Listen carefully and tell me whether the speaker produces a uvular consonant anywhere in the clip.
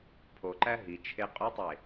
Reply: yes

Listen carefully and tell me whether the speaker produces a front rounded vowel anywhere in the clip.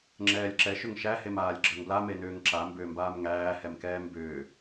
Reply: yes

